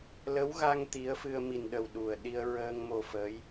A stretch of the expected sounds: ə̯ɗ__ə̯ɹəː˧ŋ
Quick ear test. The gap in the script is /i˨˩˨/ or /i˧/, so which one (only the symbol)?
i˧